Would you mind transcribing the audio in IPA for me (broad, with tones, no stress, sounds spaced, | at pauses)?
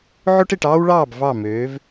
ʕ o˦ ʈ e˨ ʈ ɑː˦ w ɭ ɑː˦˨ b v ɑ˦˨ m øː˨˦ v